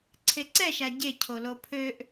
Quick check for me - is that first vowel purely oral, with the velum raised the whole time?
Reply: yes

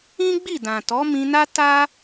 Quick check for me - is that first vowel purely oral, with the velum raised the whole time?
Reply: no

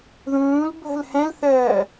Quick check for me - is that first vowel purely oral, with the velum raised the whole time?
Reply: no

